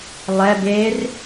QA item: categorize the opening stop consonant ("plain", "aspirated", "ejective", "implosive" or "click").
plain